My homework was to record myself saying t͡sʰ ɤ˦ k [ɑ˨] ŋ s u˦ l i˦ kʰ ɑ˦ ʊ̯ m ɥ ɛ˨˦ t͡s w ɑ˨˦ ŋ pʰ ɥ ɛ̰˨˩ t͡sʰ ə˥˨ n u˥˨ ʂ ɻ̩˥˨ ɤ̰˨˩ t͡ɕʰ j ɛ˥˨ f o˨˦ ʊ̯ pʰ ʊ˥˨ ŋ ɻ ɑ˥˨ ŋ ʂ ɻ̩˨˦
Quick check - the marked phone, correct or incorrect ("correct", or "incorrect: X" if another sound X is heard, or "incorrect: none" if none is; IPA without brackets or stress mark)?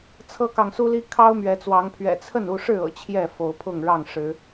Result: correct